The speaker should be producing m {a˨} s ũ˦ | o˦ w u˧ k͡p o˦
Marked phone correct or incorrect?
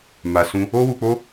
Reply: incorrect